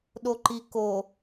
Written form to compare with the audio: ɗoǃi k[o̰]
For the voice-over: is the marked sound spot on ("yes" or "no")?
no